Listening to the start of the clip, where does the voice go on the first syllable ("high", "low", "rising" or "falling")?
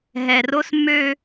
low